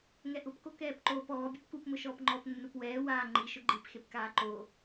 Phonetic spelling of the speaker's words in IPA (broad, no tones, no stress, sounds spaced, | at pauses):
ŋ ɛ ʔ ʊ p k o k ɛː p ǃ oː p ɔː bʲ u p k u p m ʊ ʃ ɔː p ŋ͡ǃ ɔ p nː u p w ɛː w aː ŋ͡ǃ i ʃ ʊ ɡ͡ǃ i p x e p k aː ǃ o